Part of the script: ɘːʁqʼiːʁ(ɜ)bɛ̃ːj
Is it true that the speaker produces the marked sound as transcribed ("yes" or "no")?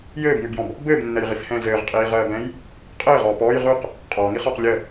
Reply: no